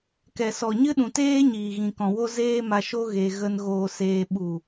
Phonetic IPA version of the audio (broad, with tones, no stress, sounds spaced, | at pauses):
k ɛ˨ s ɔ˨ ɲ ɨ˦ ɗ ũ˨ t eː˦ ɲ iː˨ ɣ ĩ˨ k ɔ̃˨ w o˧ z eː˧ m a˨ ʃ o˧ ɣ e˧ ɣ ə˦ n ɣ oː˨ s eː˨ ɓ u˨